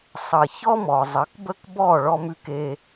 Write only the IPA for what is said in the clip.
sˤʌ˩ çɔ˥mɔ˩zˤʌ˩˥k bə˥kbɔ˥˩ ɭɔ˧mʉ˧ke˧

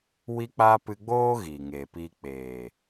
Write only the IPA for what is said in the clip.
wi˦k͡paː˦ pɨ˧ɡ͡boː˦ ɣiː˨ŋeː˨piː˧ k͡peː˨

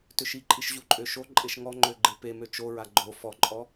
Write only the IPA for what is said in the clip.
tʏʃiǃʼiʃ ʑuǃʼøʃoǃʼeʃ ŋɔŋ͡ǃø ɡ͡ǃepemø t͡ʃoɹa ɡ͡ǃo fɔǃʼɔ

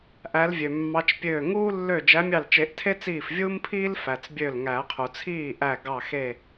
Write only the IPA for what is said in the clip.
ʔæ˨˦lvʲø˩mːɑ˨˦t͡ʃpʲøː˧˩ ŋuː˦lːø˧˩ d͡ʒæ˨˦mʲɑ˧˩lt͡ʃe˨˩˦ʔtʰe˦ t͡siː˧˩fvʲuː˦mpʰiː˦l fæ˩t͡sbʲø˧˩l ŋæ˨˩˦qʰu˩t͡sʰiː˥˩ʔæ˧˩ ɡɑ˧˩xe˧˩

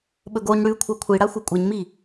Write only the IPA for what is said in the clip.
ɓɵɡoɲ ɽʉkʷʰa kʷʰiɽa xʷekʷʼeɲmi

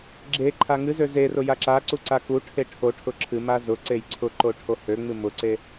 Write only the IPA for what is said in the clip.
ɡ͡ǁe ǃʰaŋɨzø zerʊ jaǁaǀu ǀakuʈʰe ʈʰoʈʰʊ ǁʰɨma zʊ ǀejǀʰʊǃo ʈʰohøŋ͡mɨ mʊǀe

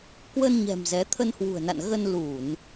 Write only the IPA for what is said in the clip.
kwə˧nɲɛ̤˨˩m zɛ˨˦ t̪ʰə˧n hwṳ˨˩ə̯na̰˧˨n ɣə˧nlu˧˩˨n

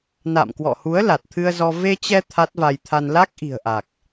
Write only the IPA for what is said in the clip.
na̰˧˨mkwɔ̰˧˨hu˨˦ə̯ la˨˩t̚t̪ʰɨ˧ə̯zɔ˧ ve˧t͡ɕɛ˧ t̪ʰa˦˥t̚va˧j t̪ʰa˧n la˦˥k̚ʔi̤˨˩ə̯ʔa˨˩k̚

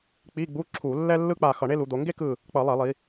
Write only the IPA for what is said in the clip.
k͡pi˧˥˧ɡ͡bu˧˥˧ ǁʰu˧˩˧ lːɛ˥lːɯ˥k͡pa˧˩ xʌ˧˩˧ɳe˥lu˩˧d̪o˩˧ ŋɡe˥kɯ˧˩ | k͡pʌ˧˩˧lˠɛ˧˩˧lˠi˩˧

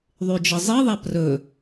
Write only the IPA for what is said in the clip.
ðˤyd͡ʒəzˤiðˤa prɵ

